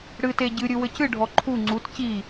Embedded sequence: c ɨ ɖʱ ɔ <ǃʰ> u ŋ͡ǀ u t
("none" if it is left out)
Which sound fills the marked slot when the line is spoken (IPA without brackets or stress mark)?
ǃʰ